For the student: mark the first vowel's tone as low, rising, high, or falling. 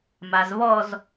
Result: low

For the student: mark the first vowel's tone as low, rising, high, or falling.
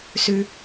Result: low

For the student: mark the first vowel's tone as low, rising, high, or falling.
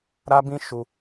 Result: high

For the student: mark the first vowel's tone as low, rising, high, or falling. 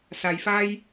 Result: low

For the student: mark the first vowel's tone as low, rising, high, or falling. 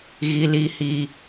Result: high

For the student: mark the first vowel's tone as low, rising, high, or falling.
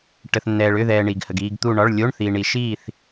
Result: low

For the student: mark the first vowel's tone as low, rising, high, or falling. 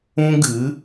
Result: high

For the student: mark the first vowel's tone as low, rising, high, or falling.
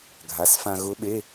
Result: rising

